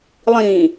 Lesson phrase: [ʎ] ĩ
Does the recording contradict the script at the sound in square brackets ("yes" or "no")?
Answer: yes